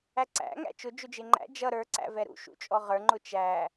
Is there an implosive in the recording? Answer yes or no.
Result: no